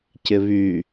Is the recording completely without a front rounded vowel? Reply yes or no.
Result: no